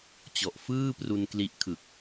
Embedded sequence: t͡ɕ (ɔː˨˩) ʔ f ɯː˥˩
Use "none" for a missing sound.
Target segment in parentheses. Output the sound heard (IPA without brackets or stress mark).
ɔ˨˩